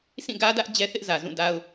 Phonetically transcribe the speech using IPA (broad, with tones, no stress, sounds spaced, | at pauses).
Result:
sʰ ĩ˦˨ ɡ ä˦ d ä˦ ʔ d͡ʑ ɛ˦ θ ɪ˦ ʔ z ä˨ z ũ˦˨ d a˦ ʊ̯